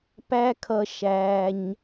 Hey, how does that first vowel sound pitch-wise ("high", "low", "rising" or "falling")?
high